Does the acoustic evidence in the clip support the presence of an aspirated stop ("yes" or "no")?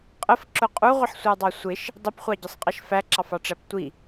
no